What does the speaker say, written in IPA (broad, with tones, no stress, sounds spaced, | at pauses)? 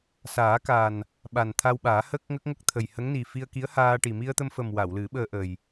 s aː˨˩˦ k a˨˩ n | ɓ a˨˩ n t̪ʰ a˧ w ɓ aː˨˩˦ h əː˦˥ k̚ ŋ ə˦˥ k̚ ŋ ə˦˥ k̚ t̪ʰ ə˨˩ j h ə˧˥ ŋ n i˨˩ f i˧ ə̯ k i˧˥ ə̯ h aː˧ ʈ i˨˩ m i˧ ə̯ t̪ ə˧ m f ə˨˩ m w a˨˩˨ w l ɨ˨˩˦ ɓ əː˧ ʔ ə˨˩ j